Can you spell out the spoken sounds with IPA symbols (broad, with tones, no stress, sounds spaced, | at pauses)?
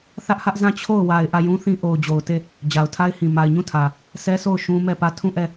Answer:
θ ä˦ ʔ h ä˦ ʔ z ã˦˨ t͡ɕʰ o˦˨ ʊ̯ w a˨ ɪ̯ ʔ ä˦˨ j ũ˦ θ ĩ˦ ʔ o˨ ʊ̯ d͡ʑ o˨ ʊ̯ t e˦˨ | d͡ʑ a˨ ʊ̯ tʰ a˦ ɪ̯ h ĩ˨ m a˨ ɪ̯ ɲ ũ˦˨ tʰ ä˨ | sʰ ɛ˦ sʰ o˦˨ ʊ̯ ʃ ũ˦ m ɛ˦˨ p ä˦˨ tʰ ũ˦˨ ʔ ɛ˦˨